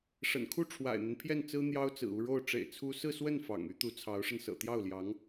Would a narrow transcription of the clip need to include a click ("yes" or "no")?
no